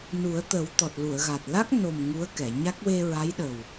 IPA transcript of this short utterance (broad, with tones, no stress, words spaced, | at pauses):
nu˨˩˦ə̯t̪ə˨˩˦w t̪ɔ˨˩t̚lu˨˩˨ə̯ɣa˨˩t̚ la˦˥k̚no˨˩m ŋu˧˥ə̯kɛ˨˩˨ɲa˦˥k̚ we˧ɹa˧˥jɗə˨˩w